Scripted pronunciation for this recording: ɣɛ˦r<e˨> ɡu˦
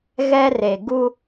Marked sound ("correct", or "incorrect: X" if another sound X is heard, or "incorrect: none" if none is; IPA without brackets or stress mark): correct